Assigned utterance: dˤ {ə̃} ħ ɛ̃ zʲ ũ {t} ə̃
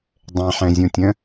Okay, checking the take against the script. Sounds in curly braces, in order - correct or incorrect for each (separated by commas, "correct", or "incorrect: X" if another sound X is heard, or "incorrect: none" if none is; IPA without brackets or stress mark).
incorrect: ɛ̃, incorrect: tʲ